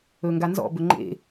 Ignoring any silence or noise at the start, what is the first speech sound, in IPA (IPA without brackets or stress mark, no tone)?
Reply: ɵ